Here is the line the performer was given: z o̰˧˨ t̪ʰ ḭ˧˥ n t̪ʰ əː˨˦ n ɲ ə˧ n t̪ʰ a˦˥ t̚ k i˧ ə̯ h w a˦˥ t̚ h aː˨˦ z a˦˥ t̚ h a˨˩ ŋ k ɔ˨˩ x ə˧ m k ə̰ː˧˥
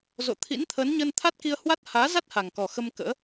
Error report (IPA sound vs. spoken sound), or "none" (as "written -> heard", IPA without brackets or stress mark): none